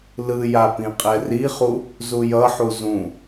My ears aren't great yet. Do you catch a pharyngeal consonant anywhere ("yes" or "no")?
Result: yes